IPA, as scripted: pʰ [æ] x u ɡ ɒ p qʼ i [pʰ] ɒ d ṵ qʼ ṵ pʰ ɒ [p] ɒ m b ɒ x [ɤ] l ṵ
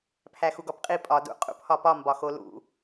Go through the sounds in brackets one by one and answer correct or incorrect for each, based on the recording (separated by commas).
correct, incorrect, correct, incorrect